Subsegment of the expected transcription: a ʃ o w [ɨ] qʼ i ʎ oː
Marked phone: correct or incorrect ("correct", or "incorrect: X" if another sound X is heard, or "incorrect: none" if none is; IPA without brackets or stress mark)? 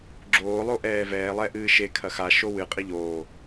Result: correct